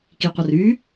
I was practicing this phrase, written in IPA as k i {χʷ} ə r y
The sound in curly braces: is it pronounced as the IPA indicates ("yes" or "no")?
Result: no